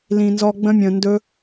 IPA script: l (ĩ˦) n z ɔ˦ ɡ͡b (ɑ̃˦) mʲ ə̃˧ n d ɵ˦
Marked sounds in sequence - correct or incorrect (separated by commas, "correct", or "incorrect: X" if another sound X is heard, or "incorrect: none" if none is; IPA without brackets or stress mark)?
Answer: incorrect: ĩ˧, incorrect: ə̃˦